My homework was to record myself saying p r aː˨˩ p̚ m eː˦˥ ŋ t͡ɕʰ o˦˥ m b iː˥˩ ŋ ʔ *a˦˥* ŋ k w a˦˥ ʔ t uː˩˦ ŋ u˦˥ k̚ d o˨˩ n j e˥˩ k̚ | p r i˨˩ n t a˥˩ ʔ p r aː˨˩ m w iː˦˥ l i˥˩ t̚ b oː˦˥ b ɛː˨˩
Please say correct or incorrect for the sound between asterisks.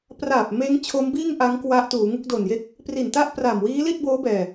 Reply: correct